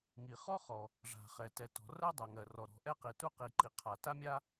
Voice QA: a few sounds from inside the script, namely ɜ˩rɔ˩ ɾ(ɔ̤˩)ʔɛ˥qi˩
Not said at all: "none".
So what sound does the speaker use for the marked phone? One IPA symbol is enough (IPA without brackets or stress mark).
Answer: ɔ̤˩